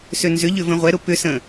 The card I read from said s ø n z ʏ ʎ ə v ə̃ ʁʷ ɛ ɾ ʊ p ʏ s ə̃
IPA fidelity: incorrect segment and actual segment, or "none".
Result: ə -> ʏ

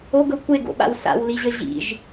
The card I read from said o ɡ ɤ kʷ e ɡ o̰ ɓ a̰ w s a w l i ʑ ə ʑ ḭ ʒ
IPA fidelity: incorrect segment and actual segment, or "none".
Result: a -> a̰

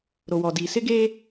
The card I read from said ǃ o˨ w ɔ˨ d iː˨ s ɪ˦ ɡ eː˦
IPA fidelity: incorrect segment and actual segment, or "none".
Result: ǃ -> ɾ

